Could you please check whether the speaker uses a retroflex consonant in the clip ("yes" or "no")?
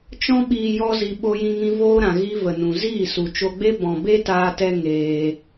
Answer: no